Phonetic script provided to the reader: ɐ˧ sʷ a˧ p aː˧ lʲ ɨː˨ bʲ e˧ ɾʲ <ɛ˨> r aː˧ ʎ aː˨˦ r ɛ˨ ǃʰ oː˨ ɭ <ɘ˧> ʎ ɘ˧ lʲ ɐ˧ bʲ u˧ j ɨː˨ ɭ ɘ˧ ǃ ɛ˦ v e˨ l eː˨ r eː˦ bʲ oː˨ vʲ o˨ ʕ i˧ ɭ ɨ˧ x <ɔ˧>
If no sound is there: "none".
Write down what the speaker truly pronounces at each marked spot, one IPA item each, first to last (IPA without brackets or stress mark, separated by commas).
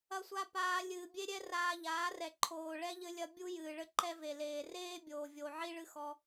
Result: ɛ˧, ɛ˧, ɔ˧